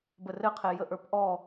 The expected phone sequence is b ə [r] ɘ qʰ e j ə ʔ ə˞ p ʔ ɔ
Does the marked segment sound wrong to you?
no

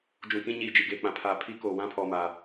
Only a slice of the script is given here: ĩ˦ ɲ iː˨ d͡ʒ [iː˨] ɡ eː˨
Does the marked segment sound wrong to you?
yes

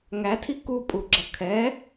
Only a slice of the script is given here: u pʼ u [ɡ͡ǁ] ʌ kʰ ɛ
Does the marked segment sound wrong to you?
no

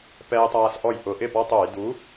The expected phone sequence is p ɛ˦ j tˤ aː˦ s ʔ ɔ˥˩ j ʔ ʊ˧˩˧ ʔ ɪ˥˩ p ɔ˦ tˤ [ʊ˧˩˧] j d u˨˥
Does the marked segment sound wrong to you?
yes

